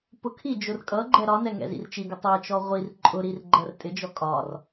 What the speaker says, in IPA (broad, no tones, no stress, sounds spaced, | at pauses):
p ʊ kʰ i d͡ʒ ʊ r kʼ ʌ ɡ͡ǃ ɛ ɾ ɒ n ɛ ŋ ɛ̰ z ḭ r t͡ʃ i ɡ ʊ tˤ ɜ t͡ʃ ɔ ʁʷ i r ǃʼ ʊ ɾ i r ɡ͡ǃ ɜ r tʼ ɪ d͡ʒ ɔ kʼ ɒ r